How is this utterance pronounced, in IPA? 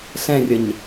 ɬ ɛ̃ rʲ ə ɲ

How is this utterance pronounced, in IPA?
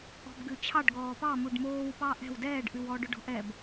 ɔ̤ b ɡ ʉ t͡ɕʰ ɑ ɖ ɡ ɔː p ɑ m u ɖ m oː w p ɑ ʔ ɛ̤ w d ɛː ɖ ʔ ʉ w ɔː ɖ ɵ ɖ ɔ̤ ʔ ɛ b

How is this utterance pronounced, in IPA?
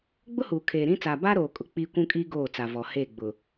ɡ͡b ʊ˦ h uː˨ kʰ eː˨ ɾ ĩ˦ t͡s aː˨ b a˦ ɾ oː˨ kʼ ʊ˨ k͡p iː˦ kʷ ũ˦ kʼ iː˦ ɡ oː˦˨ t͡s a˨ v ɔ˨ h eː˦˨ ɡ͡b ʊ˨

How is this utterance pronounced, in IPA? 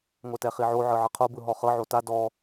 ŋʷ ɛ t ɛ χ i ʕ o ʕ ɯ ʕ ɤ qʰ o b ɯ ɦ ɔ χ ɤ ʕ o t a d ɔ

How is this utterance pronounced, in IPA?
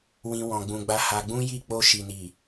w ĩ˧ w ɔ̃˧ ɡ͡b ũ˧ ɡ͡b a˦ h a˧ ɡ͡b ũ˦ j i˦˨ k͡p o˧ ʃ i˨ n i˨

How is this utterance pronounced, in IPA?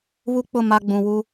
β u˦ k͡p ʊ˦˨ m a˦ ɡ͡b ũ˨ w u˦

